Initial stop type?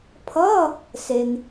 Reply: aspirated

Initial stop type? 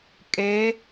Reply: ejective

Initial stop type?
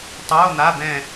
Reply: plain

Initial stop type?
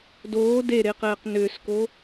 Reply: plain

